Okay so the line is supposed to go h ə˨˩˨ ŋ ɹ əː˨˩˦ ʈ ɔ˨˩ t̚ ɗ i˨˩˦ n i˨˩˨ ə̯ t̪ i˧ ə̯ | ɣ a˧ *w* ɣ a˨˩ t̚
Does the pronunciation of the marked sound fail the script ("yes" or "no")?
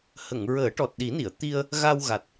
no